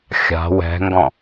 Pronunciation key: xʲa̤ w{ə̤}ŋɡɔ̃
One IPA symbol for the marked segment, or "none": ɛ̤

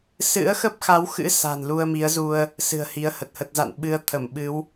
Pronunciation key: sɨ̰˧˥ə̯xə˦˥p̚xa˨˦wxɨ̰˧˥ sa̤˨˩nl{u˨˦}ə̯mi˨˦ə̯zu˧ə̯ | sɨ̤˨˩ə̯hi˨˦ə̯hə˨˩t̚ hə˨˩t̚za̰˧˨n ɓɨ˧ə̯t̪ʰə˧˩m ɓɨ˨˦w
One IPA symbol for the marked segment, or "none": u˧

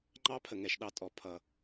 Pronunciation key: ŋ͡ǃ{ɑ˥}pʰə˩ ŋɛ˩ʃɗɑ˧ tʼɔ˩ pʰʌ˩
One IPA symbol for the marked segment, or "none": ɑ˥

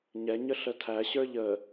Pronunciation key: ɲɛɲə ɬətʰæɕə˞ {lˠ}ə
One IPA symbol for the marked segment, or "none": ʎ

